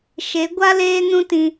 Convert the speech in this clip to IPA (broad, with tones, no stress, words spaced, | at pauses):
ʃe˨˦ ɡʷa˦ leː˦nũ˦tĩ˧